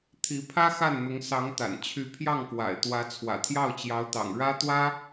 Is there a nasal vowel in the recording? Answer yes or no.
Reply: no